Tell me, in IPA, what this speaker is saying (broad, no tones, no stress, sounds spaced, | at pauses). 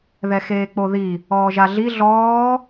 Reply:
ð ɛ x eː k͡p o ð i | ɔː ʒ a ɮ i ɮ ɔː